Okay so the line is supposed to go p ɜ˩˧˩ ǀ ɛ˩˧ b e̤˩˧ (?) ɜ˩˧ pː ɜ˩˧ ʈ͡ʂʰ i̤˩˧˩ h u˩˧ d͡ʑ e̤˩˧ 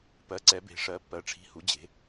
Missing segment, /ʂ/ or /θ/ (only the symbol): ʂ